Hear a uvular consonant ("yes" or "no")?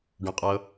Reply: yes